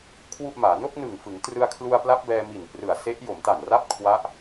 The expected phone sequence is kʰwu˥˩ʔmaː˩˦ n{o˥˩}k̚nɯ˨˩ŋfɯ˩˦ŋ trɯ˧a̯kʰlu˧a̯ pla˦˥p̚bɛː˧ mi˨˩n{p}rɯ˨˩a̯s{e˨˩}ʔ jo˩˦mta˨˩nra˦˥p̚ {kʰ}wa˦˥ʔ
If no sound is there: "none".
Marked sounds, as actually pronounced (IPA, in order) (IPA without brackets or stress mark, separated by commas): o˥˩, p, e˦˥, kʰ